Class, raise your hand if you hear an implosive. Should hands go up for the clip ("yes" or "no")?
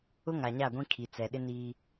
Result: yes